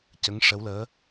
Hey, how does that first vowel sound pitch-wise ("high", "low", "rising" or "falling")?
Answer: rising